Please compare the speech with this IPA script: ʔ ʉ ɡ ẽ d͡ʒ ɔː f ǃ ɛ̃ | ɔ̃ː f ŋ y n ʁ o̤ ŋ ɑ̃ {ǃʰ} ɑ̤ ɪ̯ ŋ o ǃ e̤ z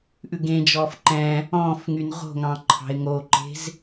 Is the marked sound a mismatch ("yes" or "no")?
no